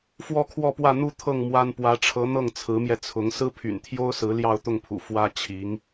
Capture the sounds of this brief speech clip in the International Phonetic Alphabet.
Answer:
f w ɔ˥˧ kʰ w ɔ˥˧ p w ä˥˧ n̪ u˥˧ t̪ʰ ɤ˥˩ ŋ m w a˥ n p w ä˧˥ ʈ͡ʂʰ ɤ˧˥ n̪ ɤ˥˩ ŋ t͡sʰ ɹ̩˧˥ m j ɛ˧ t͡sʰ ʊ˧˥ ŋ s ɹ̩˥ pʰ y̰˨˩ n t̪ʰ j o˥ ʊ̯ s ɹ̩˧˥ l j ɑ˥˧ ʊ̯ t̪ ʊ˥˩ ŋ pʰ ṵ˨˩ f w ä˥ t͡ɕʰ i˧˥ ŋ

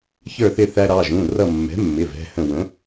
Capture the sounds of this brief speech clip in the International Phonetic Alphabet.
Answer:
ç ə˞˧˩ θ ɪ˧˩ θ æ˧ ɾ ɑ˩˧˩ ʒ ũ˩˧˩ r ʌ˧˩ mː ɛ̤˩˥ mː ɪ˩˧˩ v ɛ̤˩˧˩ h ə̃˧˩ w ə̃˩˥

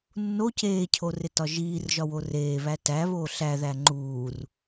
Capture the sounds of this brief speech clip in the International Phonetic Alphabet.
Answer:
nː o c eː cʰ o r e t ɒ ʒ iː r ʒ ɒ w o r eː β æ t æ β oː ɬ æ ð æ ŋ͡ǃ uː r

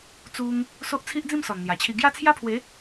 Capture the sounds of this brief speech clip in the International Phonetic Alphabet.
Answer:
t͡s u˧ ŋ | s o˦ ʔ t͡sʰ i˦ ʔ d͡z ĩ˥˧ m s ɔ˨˩ n n̪ j a˨˩ t͡ɕʰ i˧ ɡ j a˥˧ t͡sʰ j a˦ pʰ w e˨˦

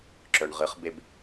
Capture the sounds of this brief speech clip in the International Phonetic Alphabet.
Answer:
ǁ œ ɳ ʁ ɨ χ b e b

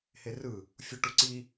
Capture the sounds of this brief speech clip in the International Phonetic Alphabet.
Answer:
h e r ɯ | fʲ u ʈ u ǀ i

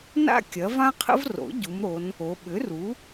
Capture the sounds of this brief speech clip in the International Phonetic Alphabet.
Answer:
n a̰˥ kʲ ɐ˩˥ v ã˥ qʰ ə̰˥ v r o̰˩˥ ɟ u˩˧ m ɾ o˩˧ n | o˩˧ ɓ ʏ˩˥ r u˩˥

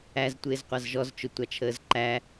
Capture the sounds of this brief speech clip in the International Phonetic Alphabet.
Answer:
æ z tʷ ɪː z qʷ ɑ z ʒ ɔ z t͡ʃ ʊ tʷ ɑ t͡ʃʰ əː z ǃ æ

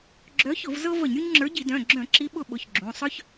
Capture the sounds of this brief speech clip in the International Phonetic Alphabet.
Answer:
ɡ͡ǁ œ˨˥ ç ʊ˧˩˧ v z ɤ˦ v ə˧˩˧ ɲ ɾʲ u˦ ɲ ŋ͡ǁ ə˞˨˥ ɟ i˧˩˧ d œ̃˩˧˩ ɡ͡ǁ œ̃˧˩˧ ǁ i˨˥ ɓ ʊ˦ ɓ ʊ˩˧˩ ç ɡ͡ǁ ũ˩˧˩ sˤ œ˦ ç

